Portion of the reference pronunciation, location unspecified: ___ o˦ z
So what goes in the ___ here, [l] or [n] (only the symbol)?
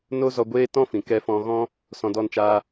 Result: n